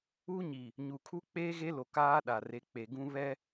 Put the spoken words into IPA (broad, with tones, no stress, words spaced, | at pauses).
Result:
u˦ɲi˨ | ɲu˨kʰu˦ k͡peː˦ɣe˦lo˨ kaː˦ɗa˨re˨˦k͡pe˨ ɡũ˦ βɛ˦